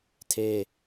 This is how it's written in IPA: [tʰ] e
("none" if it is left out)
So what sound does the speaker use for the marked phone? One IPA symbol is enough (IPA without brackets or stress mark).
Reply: tʰ